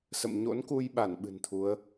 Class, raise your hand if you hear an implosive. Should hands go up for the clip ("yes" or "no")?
yes